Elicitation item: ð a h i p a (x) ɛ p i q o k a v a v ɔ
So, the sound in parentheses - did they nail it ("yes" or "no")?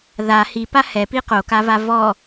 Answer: no